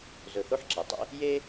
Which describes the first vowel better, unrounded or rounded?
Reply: rounded